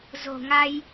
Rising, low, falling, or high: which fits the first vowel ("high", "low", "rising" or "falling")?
low